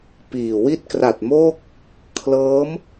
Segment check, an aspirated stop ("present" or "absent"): present